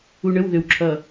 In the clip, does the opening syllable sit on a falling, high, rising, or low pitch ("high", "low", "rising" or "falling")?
low